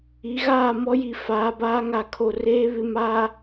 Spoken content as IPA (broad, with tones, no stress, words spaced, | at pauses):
i˨˦ɣaː˦˨mɔ˦ji˨ faː˨˦baː˦ŋa˨kʰo˨ reː˦ βɪ˨ma˨